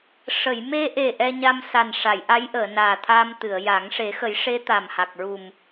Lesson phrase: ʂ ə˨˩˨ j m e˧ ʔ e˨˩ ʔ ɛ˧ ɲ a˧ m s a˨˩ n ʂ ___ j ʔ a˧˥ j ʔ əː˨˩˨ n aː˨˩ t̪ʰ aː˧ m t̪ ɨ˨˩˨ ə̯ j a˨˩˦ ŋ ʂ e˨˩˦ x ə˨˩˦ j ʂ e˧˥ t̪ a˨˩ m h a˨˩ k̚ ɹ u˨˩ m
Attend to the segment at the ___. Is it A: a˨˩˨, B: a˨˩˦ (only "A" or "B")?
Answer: A